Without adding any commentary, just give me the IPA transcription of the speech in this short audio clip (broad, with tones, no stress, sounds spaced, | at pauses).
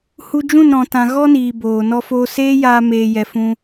h u˧ d͡ʒ ũ˦˨ n ɾ ɔ̃˨ t ã˨ ɣ ɔ˦ n iː˨ b oː˨ n ɔ˦ f oː˦ s eː˦ j aː˧ m eː˧ j ɛ˧ f ũ˦